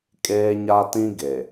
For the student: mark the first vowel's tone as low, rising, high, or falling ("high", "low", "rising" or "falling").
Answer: high